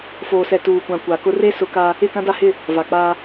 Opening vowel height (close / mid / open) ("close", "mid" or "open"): mid